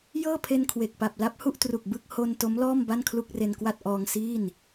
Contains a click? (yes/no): no